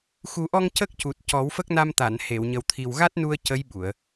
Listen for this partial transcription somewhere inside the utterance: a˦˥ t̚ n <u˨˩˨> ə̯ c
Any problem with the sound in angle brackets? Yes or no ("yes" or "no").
yes